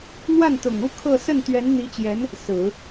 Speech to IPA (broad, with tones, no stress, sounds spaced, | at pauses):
n̪ w a˥˩ n t̪ ʊ˨˩ ŋ u˥˧ kʰ ɤ˥˧ s ə˥˩ n t̪ ɥ ɛ˧˥ n n̪ i˧˥ t͡ɕ j ɛ˧˥ n | s ɹ̩˨˩˦